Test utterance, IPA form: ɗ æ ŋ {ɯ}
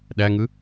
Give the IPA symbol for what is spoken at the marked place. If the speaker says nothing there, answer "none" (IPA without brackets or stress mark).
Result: ɯ